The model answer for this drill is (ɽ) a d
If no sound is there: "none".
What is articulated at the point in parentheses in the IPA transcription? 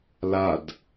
l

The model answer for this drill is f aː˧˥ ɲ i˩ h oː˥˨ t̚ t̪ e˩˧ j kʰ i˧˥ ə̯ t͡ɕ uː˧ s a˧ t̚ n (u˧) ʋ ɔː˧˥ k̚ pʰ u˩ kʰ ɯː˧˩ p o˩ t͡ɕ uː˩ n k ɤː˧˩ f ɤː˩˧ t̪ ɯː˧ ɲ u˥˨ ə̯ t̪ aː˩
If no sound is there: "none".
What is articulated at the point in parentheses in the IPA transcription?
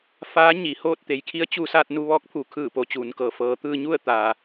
u˧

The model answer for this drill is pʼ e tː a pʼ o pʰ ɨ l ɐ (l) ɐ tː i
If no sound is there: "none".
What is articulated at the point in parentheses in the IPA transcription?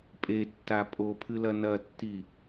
n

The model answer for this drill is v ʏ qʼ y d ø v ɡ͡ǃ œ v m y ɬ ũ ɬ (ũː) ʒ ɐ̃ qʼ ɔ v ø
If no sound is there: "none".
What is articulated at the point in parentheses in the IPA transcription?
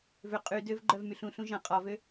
ũ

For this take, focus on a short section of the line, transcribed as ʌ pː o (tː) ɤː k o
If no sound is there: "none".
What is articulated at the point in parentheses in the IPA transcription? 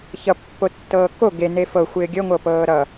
tː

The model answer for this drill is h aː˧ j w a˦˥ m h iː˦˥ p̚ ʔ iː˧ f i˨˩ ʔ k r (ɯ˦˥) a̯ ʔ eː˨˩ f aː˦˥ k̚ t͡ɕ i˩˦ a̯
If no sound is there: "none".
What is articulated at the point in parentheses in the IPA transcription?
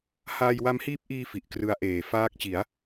ɯ˦˥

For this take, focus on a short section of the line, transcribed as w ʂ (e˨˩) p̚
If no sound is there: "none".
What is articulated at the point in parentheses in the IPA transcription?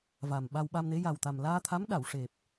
e˨˩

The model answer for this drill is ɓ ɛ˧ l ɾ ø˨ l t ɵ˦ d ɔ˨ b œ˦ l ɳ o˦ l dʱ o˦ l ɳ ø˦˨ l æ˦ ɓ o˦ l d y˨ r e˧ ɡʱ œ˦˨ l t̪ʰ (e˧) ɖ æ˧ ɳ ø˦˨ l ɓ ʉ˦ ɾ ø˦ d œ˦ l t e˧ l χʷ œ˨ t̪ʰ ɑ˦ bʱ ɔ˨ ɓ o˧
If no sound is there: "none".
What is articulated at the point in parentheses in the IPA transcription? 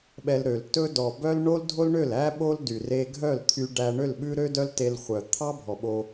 y˧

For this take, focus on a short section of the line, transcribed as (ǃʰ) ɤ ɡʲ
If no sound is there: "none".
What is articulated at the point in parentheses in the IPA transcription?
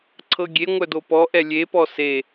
ǀʰ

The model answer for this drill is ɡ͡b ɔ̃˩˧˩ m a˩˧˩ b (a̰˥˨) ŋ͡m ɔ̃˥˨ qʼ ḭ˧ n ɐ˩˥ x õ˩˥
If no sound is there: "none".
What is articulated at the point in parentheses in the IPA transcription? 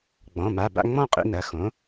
a̰˥˨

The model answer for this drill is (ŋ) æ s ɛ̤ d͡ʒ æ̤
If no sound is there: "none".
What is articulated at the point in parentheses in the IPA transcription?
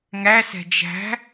ŋ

